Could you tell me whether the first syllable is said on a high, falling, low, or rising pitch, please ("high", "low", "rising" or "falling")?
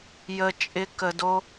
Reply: low